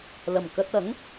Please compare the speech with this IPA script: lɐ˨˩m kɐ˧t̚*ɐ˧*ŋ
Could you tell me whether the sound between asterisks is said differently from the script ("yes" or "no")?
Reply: yes